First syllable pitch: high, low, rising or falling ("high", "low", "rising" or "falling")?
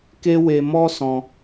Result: high